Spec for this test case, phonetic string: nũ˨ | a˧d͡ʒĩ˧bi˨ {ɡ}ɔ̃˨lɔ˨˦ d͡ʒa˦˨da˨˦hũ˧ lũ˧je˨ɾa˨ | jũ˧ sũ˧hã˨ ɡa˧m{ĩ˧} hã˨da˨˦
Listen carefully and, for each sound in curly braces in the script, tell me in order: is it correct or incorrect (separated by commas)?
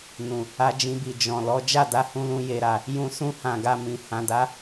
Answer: incorrect, incorrect